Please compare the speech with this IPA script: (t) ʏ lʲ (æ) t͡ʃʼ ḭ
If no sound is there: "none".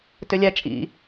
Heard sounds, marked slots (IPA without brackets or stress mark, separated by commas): t, æ